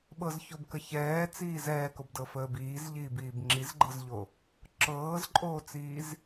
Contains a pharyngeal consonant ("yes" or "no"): no